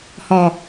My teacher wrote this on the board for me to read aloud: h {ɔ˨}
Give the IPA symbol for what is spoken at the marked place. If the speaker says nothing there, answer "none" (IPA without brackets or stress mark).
ɔ˨